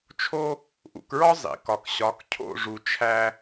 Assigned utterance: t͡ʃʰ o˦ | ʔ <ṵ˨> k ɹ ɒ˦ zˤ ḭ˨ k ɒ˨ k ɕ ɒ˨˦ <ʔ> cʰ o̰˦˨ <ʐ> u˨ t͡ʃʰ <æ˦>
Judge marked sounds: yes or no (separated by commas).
yes, no, yes, yes